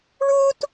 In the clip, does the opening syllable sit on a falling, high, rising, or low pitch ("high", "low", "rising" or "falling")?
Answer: high